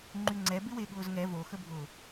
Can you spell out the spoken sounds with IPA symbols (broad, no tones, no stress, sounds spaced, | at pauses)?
ŋ͡ǃ y ŋ͡ǀ ɛ b ɪ w e ɠ ʊː z ŋ ɛ v o x ə bʱ ʊ